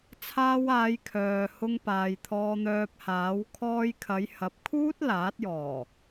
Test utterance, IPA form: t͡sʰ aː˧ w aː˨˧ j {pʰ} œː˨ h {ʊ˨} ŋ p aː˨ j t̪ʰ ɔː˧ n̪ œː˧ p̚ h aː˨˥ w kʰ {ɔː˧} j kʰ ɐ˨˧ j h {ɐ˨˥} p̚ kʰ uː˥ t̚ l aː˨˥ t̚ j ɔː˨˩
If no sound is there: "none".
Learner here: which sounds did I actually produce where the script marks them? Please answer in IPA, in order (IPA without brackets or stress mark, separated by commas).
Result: kʰ, ʊ˧, ɔː˧, ɐ˨˥